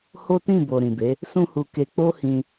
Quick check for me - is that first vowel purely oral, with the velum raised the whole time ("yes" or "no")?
yes